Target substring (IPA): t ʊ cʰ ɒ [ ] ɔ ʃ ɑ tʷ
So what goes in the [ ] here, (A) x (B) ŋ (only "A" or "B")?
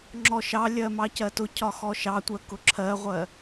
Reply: A